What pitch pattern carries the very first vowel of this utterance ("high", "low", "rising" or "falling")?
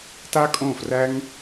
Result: high